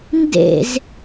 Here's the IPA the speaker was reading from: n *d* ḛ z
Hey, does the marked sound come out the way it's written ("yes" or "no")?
yes